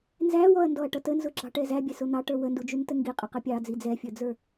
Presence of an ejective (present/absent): present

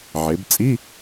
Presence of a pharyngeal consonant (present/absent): present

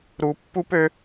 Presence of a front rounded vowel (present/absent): present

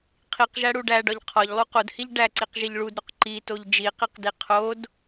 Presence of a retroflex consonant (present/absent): present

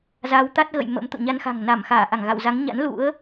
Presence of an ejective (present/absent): absent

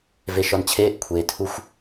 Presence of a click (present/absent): absent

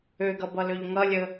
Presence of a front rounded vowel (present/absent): present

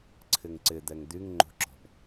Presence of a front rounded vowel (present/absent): present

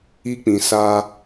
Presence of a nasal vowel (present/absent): present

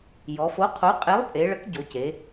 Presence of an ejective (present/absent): present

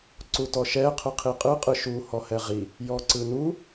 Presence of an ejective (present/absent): present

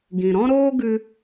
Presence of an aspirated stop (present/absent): absent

